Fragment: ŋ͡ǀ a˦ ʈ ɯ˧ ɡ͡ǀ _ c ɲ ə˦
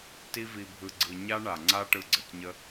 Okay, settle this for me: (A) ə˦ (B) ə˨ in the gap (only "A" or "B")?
B